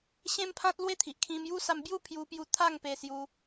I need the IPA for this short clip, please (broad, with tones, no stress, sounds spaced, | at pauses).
ɕ ẽ˦ m pʰ ã˦ t̚ l w e˦ t̪ʰ i˨ ʔ kʰ ĩ˧ m j u˦ s a˧ m b j u˥˧ pʰ j u˧ p j u˧ t̪ʰ a˥˧ ŋ p e˧ s j u˧